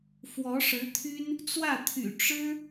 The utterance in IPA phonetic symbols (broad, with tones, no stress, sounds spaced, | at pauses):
f w ɔ˧˥ ʂ ɻ̩˧˥ t̪ʰ y˥ n | t͡s w ä˥˩ t̪ʰ y̰˨˩ ʈ͡ʂ ɻ̩˥